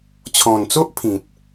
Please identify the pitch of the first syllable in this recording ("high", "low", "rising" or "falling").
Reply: low